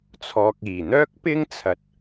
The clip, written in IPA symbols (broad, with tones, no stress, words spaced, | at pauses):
t͡sʰɔː˨k̚iː˨˩n̪œː˥k̚pɪ˥ŋ t͡sʰɐ˨˥t̚